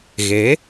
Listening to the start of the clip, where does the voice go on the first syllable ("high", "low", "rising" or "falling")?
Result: rising